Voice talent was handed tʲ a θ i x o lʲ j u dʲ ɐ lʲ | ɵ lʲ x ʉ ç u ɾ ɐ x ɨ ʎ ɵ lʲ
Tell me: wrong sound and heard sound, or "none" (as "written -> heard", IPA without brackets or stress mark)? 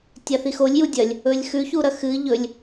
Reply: none